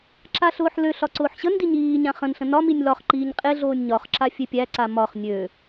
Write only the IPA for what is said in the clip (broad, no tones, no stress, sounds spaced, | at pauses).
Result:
ǁ a ɬ ʊː ħ l ø ɬ ɒ ǀ ʊː ħ ɕ ə n d i ɲ iː ɲ ã χ ə̃ n ɬ ə̃ n ɒ m i nʲ l ɒ χ ǃ iː ɲ qʼ e ɮ oː nʲ ɲ ɒ χ ǁ a fʲ e pʲ æ ǀ a m ɒ χ nʲ ø